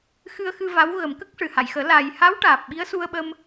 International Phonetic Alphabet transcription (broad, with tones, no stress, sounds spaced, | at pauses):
x ɨ˧ ə̯ x ɨ˧ v a˧˥ w ɣ ə˨˩˦ m k ə˦˥ k̚ ʂ ɨ˨˩ h a˨˩˨ j x əː˨˩˦ l a˨˩ j h a˧˥ w ʈ aː˨˩ p̚ ɓ i˧˥ ə̯ s u˧ ə̯ ɓ ə˧ m